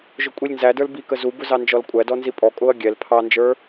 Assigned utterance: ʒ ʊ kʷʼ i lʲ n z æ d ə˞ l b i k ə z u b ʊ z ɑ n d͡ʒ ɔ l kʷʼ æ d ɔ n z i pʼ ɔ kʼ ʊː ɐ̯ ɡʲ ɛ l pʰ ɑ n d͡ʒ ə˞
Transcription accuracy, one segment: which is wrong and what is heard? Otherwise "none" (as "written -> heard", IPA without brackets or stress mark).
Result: none